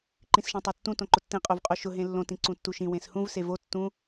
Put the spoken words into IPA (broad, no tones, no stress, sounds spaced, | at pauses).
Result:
ǃ ĩ s ʃ ẽ tˤ o tː ũ t õ ǃ ʊ tː ĩ qʼ o v qʼ o ʃ ʊ ɦ ẽ lː õ t ĩ ǀ ũ tː u ʃ ĩ w ẽ s h ũ v s e v o tː ũ